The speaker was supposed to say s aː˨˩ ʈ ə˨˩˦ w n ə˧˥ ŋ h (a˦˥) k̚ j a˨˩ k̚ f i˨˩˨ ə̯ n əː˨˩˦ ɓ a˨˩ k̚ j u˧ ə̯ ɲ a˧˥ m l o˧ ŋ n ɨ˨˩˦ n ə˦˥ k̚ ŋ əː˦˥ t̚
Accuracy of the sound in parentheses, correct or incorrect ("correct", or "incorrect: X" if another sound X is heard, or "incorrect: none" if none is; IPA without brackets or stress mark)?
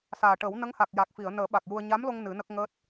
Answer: incorrect: a˨˩